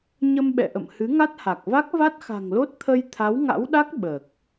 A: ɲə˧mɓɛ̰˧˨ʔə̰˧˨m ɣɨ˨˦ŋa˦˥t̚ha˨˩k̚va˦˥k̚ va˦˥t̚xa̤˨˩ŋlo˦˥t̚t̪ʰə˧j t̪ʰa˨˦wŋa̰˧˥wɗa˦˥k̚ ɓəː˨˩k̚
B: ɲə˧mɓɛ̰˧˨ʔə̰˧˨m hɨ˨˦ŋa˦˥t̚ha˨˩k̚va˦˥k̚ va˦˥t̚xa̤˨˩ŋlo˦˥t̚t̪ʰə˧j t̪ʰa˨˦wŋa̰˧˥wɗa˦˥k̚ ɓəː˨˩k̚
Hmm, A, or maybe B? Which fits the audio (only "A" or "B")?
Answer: B